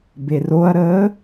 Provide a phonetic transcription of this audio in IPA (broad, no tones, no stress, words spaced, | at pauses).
beroɐ̯ɾəː